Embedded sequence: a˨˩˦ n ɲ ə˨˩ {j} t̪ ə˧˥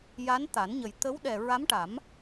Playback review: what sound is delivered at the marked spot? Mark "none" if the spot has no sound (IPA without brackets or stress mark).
j